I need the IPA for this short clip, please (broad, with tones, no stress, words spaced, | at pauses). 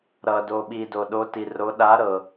ɾʌ˨do˨ɓi˨ do˨ɗo˨˥ti˨ro˨˥ ɗa˨˥ ɾɤ˨